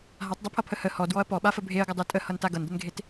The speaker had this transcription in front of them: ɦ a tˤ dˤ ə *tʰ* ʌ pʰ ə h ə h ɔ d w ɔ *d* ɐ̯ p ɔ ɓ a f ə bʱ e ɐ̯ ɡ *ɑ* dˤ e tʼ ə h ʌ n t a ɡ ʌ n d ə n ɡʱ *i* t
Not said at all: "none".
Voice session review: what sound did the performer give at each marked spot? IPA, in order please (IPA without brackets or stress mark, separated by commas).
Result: pʰ, none, ʌ, e